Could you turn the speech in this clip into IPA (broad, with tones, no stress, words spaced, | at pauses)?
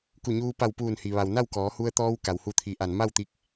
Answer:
ku˧˩ɲuː˧ pa˧˩wpuː˧˩nhi˩ʋa˩w na˥˨wkɔː˩˧hu˧ə̯ t̪ɔː˧wka˩whu˧˩ t̪ʰi˩˧ʔa˩n ma˥˨wt̪i˧k̚